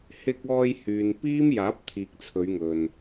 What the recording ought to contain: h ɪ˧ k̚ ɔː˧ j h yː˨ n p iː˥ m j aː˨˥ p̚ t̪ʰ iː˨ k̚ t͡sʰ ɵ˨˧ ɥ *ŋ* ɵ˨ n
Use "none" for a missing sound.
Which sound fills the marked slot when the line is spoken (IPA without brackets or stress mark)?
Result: ŋ